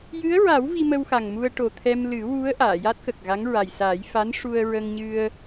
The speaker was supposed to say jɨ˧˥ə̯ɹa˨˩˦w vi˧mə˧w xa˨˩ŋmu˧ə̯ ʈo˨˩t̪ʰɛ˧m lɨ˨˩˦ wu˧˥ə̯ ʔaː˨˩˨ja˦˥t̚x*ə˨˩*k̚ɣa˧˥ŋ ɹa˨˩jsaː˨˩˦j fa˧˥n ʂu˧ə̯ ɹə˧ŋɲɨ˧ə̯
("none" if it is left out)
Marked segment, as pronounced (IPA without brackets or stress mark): ə˨˩